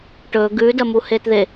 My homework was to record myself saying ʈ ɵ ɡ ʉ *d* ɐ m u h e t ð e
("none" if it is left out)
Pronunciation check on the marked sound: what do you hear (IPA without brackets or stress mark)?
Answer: d